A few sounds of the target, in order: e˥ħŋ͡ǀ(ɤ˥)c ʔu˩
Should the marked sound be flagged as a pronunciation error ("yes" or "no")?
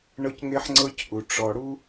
no